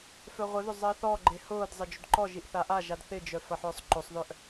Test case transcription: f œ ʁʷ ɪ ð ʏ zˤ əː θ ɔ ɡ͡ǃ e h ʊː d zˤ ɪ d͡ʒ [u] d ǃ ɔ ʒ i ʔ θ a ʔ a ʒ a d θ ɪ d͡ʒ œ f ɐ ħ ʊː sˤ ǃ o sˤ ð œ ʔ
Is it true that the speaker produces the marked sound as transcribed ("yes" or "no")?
no